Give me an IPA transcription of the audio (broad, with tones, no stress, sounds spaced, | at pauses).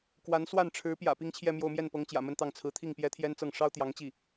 k w a˧˥ n s w a˥˩ n ʈ͡ʂʰ ɻ̩˧˥ p j ä̰˨˩ p i˥ ŋ t͡ɕʰ j ɛ˥˧ m j o˥˧ ʊ̯ m j ɛ˥˩ n p ɤ˧˥ ŋ t͡ɕ j ä̰˨˩ m ə˥˧ n t̪ ɑ˥˩ ŋ t͡sʰ ɹ̩˧˥ t̪ʰ i˥˩ ŋ p j ɛ˥ t̪ʰ j ɛ˥ n t͡s ɤ˥˩ ŋ ʂ ɑ˥ ʊ̯ t̪ j ɑ˧˥ ŋ t͡ɕ i˥˩